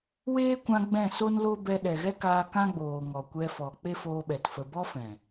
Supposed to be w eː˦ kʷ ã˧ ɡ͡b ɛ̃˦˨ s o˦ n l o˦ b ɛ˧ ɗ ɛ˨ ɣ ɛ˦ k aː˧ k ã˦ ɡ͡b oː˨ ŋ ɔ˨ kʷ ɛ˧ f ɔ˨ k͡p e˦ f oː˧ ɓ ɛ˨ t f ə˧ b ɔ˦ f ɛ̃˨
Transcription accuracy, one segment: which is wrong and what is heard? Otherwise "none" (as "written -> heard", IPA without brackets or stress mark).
none